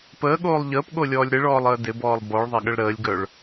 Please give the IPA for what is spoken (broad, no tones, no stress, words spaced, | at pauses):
pəːɠoːlˠ ʎəːpɠolʲɔːlʲ ɾɪɭɔːlˠəː dɪbɔːlˠ bɔɭðˤɐɠəɭ ɾəːlʲɡœɭ